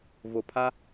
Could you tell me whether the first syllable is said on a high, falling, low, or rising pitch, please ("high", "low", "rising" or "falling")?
low